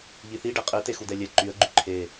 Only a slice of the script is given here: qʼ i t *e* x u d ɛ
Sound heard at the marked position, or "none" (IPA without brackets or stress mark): e